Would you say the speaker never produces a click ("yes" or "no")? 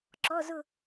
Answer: no